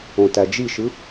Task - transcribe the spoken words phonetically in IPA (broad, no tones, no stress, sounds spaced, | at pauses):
õ t æ d͡ʒ i ʃ ɯ